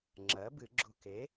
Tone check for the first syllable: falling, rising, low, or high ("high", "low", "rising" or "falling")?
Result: rising